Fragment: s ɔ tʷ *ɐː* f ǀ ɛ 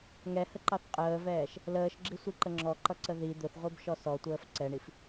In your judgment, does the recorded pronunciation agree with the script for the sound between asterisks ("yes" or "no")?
no